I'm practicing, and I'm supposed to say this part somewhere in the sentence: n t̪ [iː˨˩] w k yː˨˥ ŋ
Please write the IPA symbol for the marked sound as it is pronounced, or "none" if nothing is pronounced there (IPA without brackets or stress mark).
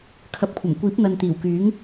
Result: iː˨˩